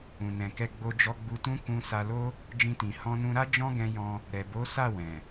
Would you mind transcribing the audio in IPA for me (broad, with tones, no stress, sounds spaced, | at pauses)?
ũ˨ n ɛ̃˨ k ɛ˧ ɡ͡b o˧ d͡ʒ ɔ˧ ɡ͡b u˧ t ũ˦ k ũ˧ s a˧ l o˦ | d͡ʒ ĩ˧ t ĩ˨ h ɔ̃˧ n ũ˧ ɾ a˦ d͡ʒ ɔ̃˦ ɡ ɛ̃˧ j ɔ̃˧ | ɾ ɛ˨ b o˨˦ s a˦˨ w ɛ̃˨